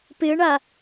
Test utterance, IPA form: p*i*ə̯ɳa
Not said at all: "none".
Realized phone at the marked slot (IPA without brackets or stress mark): ɪ